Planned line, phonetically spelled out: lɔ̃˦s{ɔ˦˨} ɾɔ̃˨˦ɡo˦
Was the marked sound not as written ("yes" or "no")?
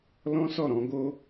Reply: no